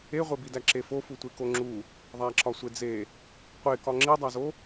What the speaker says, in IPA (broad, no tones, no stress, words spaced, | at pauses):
eʁʷebidæ ǁefo futʷekoŋ͡ǁu | ðˤæǁɒsʷed͡ze | qʷekɒ ŋ͡ǁidˤæzo